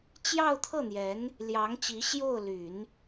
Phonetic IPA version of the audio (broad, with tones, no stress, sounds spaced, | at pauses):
t͡ɕ j ɑ˥˧ ʊ̯ t̪ʰ ɤ˥˩ n̪ j ɛ˧˥ n | l j ɑ˧˥ ŋ t͡ɕ i˧˥ ɕ j o˥˩ ʊ̯ l y˨˩˦ n